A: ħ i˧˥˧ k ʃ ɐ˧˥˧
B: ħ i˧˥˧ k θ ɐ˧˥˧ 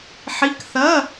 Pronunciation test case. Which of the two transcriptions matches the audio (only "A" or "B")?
B